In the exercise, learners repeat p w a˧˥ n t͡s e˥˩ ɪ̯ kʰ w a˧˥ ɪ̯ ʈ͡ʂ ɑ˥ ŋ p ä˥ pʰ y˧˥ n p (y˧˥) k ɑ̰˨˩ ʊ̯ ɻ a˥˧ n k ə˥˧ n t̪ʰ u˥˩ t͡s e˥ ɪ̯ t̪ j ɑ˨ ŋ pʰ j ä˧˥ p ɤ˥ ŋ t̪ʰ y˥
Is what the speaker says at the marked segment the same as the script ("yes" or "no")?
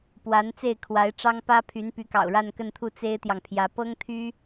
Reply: yes